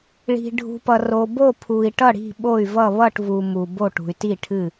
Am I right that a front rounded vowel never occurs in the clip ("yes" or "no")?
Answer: no